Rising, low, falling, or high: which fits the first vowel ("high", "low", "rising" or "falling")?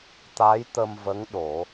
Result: rising